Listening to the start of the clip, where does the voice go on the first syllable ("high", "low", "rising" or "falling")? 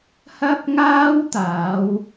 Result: high